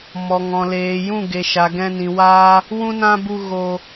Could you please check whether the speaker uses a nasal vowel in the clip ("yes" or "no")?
yes